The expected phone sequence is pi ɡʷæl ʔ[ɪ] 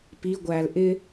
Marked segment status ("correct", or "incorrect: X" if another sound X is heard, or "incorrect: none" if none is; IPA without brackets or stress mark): correct